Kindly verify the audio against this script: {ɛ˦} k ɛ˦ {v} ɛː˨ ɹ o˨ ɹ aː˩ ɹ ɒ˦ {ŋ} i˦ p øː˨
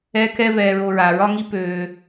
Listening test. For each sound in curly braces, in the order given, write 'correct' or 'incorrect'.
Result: correct, correct, correct

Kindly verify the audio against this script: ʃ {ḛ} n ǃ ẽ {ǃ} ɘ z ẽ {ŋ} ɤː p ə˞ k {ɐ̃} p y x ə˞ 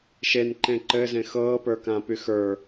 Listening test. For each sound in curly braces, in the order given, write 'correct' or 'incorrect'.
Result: incorrect: e, correct, incorrect: x, incorrect: ã

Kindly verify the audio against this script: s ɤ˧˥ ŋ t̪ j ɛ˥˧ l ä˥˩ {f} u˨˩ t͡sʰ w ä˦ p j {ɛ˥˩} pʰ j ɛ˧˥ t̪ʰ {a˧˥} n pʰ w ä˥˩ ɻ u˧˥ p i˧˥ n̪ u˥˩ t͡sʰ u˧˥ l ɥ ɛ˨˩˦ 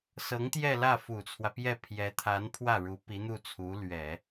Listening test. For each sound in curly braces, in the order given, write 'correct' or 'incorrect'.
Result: correct, correct, correct

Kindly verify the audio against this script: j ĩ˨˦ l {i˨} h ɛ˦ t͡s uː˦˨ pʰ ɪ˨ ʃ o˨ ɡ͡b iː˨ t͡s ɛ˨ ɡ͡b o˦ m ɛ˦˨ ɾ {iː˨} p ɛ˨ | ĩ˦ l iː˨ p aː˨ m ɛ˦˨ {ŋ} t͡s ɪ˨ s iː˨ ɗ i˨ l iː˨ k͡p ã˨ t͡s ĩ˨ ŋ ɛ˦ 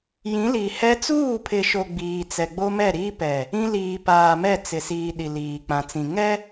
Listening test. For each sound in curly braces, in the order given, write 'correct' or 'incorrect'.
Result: correct, incorrect: iː˦, incorrect: none

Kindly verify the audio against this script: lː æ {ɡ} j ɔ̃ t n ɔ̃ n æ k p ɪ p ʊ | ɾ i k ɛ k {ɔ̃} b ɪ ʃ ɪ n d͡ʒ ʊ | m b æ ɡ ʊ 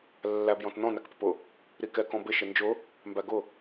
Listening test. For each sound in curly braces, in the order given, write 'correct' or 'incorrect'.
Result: incorrect: b, correct

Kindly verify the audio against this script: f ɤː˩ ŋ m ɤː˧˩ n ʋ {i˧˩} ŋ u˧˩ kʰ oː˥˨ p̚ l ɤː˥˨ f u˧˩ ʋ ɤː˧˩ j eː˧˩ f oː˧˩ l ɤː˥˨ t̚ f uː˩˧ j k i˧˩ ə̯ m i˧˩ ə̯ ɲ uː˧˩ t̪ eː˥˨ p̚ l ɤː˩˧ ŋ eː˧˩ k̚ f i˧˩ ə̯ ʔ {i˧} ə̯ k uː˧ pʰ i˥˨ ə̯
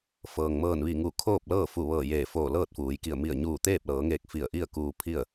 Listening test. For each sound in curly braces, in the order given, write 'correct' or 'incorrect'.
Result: correct, incorrect: i˥˨

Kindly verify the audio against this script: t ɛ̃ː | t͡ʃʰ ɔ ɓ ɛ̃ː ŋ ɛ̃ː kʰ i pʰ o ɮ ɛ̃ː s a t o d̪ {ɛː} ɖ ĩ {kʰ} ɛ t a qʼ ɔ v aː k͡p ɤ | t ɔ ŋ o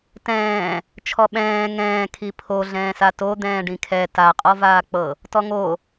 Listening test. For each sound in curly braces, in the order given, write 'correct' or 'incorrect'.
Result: incorrect: ɛ̃ː, correct

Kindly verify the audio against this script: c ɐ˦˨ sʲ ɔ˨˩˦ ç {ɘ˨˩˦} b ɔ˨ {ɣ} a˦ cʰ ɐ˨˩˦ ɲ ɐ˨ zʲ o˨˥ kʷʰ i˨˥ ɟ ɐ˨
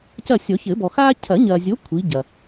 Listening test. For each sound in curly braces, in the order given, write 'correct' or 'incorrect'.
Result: correct, incorrect: x

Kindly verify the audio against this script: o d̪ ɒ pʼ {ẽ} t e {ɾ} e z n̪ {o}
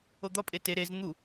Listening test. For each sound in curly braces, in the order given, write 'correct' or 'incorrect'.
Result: incorrect: e, correct, incorrect: u

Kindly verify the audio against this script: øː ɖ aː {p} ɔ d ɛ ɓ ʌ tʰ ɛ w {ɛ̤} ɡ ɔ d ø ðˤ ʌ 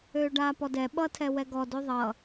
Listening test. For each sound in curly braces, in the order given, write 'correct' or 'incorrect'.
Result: correct, incorrect: ɛ

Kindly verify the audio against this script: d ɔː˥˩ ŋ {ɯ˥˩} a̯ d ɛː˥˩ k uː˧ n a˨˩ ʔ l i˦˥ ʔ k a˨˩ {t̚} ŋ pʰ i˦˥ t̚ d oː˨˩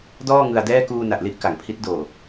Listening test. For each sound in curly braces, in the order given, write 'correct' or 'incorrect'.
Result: incorrect: ɯ˧, incorrect: none

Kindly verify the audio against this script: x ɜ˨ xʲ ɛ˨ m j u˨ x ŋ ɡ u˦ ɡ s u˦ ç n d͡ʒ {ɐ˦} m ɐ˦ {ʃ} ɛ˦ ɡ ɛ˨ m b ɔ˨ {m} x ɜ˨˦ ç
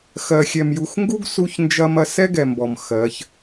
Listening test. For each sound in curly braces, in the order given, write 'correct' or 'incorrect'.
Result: correct, incorrect: s, correct

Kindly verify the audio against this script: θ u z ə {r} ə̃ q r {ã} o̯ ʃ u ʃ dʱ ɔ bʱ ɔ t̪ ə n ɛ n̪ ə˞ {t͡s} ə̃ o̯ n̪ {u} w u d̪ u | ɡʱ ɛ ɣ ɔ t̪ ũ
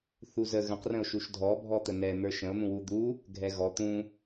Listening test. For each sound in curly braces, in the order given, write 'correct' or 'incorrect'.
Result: incorrect: ɣ, incorrect: ə̃, incorrect: ʃ, incorrect: ũ

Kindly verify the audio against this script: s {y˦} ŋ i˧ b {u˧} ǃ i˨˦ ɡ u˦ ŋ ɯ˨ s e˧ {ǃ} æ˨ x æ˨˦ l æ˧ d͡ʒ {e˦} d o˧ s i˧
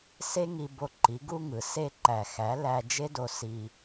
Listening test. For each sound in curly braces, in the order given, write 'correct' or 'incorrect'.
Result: incorrect: e˦, incorrect: o˧, correct, correct

